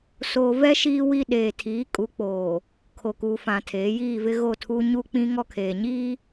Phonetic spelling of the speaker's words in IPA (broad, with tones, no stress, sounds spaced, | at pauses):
s oː˨ v ɛ˦ ʃ iː˦ w i˦ ɗ eː˨ tʰ iː˨˦ kʼ u˨˦ k͡p oː˨ | kʰ o˨ k u˨ f ã˨ tʰ eː˨˦ j iː˦˨ v ɪ˦ ɣ o˦˨ tʰ u˦ ɲ u˦ k͡p ĩ˦ ŋ ɔ˦ kʰ eː˨ ɲ iː˦